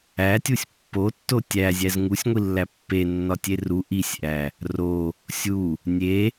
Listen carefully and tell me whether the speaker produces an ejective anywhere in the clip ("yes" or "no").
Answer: no